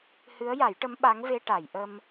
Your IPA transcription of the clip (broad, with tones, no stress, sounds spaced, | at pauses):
h ɨ˧˥ ə̯ j a˨˩˦ j ʈ ə˧˥ m ɓ a˧˥ ŋ v e˧ ʈ a˨˩˨ j ʔ ə˧ m